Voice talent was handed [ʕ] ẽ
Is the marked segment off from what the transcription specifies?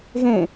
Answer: yes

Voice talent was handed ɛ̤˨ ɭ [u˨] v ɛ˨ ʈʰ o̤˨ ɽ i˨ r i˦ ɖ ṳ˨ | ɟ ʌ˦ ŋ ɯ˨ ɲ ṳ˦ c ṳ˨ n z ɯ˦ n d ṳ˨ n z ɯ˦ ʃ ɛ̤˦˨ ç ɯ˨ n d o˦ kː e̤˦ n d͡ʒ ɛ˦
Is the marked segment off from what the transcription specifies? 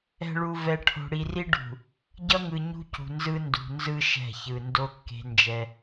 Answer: no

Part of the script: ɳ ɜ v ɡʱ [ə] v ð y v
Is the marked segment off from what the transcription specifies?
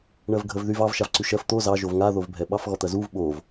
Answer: no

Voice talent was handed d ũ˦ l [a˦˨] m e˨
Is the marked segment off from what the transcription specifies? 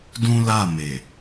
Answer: no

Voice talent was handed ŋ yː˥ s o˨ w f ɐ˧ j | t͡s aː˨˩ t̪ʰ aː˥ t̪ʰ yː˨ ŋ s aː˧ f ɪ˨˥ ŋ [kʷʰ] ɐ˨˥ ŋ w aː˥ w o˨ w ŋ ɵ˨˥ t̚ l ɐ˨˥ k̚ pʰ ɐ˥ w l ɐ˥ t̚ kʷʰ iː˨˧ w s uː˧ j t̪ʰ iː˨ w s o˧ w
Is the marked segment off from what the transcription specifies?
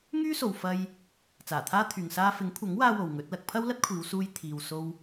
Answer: no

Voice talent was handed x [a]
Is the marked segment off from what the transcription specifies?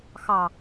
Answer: yes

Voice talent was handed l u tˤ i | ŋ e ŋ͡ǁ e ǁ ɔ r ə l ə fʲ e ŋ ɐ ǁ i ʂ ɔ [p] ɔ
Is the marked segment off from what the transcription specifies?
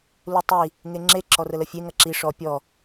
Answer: yes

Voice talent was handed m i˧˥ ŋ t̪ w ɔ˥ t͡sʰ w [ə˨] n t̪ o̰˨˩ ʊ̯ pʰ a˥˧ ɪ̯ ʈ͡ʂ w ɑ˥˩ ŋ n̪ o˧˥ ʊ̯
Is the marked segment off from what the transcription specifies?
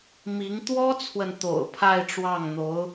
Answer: no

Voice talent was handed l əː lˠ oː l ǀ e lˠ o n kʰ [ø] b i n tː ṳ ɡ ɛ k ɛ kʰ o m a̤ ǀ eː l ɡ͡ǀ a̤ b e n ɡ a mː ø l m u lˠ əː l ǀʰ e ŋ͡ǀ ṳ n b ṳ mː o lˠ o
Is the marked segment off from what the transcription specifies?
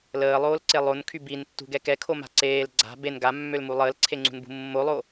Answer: yes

